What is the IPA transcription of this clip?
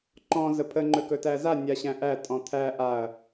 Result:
ǃ ɔ̃ z ə pʰ ə ŋ͡ǃ ɵ k ɵ t æ z a nʲ a ɕ æ̃ ʔ æ tʼ ɔ̃ t̪ʰ æ ʔ a ɐ̯

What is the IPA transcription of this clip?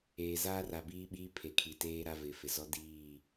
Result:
eː˨ z aː˦ r a˨ b iː˦ ɓ iː˦ pʰ e˨ kʰ i˨ t eː˦ ɾ a˦ v ɪ˨ f ɪ˨ z ɔ˦ d iː˦˨

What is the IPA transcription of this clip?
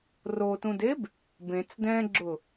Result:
r o t ũ d e b | b ẽ t͡s d ɛ̃ ɡ͡ǁ ʊ

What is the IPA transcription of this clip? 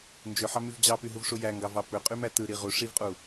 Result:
n d͡ʒ ø ħ ɑ m y v d͡ʑ ɑ p y ɦ u v ʂ u j æ ŋ ɡ ɑ v ɑ p ø qʼ y m æ t ɯ ɾ i ʁ u ʂ i v qʼ u

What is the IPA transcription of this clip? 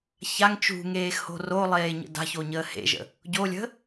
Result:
ç a ŋ t͡ʃ ṳ ŋ eː x h o̤ r o lˠ eː ɲ ə̰ d a̤ ç o ɲ əː h ḛ ʒ ə̰ | ɟ o lʲ ə̤

